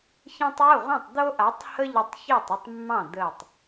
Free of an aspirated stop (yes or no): yes